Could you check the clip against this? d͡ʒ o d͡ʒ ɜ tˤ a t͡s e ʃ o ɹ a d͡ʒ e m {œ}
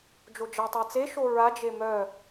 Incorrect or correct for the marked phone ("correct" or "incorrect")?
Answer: correct